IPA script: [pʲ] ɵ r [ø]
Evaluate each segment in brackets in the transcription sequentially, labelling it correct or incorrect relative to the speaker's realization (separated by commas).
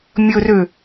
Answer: incorrect, correct